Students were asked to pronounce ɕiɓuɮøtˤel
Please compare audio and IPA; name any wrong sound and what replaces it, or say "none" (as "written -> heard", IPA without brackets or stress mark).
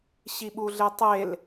ø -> e